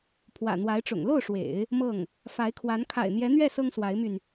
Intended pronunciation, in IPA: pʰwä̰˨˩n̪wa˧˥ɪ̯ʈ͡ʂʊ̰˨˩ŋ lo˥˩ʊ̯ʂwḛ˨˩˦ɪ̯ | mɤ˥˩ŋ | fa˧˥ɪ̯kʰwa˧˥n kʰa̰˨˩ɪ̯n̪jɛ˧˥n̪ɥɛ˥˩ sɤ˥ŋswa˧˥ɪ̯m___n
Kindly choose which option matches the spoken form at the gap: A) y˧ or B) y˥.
A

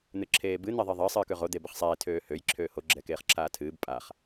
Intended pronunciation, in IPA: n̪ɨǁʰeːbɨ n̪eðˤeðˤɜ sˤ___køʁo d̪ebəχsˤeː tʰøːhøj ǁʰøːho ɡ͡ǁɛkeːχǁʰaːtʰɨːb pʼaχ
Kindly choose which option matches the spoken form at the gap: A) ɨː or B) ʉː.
A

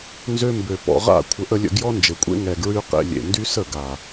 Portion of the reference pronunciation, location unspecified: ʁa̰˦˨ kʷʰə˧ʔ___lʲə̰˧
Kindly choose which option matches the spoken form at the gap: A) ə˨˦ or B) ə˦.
B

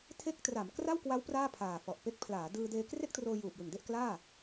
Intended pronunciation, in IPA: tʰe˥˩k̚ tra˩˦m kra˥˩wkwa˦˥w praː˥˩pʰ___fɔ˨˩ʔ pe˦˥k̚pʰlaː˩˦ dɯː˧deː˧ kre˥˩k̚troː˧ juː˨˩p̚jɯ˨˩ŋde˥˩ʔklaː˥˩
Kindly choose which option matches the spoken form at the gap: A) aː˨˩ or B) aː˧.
A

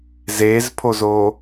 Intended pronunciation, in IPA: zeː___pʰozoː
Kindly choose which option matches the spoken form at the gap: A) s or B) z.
B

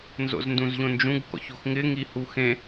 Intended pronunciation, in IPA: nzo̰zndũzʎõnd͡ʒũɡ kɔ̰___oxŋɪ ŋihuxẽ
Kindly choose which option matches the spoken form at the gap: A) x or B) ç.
B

